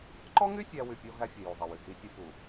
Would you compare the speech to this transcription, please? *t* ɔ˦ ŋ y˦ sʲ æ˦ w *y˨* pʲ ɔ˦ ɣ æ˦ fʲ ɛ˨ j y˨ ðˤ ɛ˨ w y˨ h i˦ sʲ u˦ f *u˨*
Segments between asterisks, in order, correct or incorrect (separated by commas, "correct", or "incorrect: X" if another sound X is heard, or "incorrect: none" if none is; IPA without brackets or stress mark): incorrect: ǃ, correct, correct